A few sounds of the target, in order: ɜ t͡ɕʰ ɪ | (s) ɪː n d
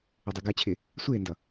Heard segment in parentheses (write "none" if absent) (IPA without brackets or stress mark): sʷ